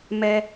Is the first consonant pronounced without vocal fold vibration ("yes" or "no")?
no